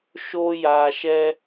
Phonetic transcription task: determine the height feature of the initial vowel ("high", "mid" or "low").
mid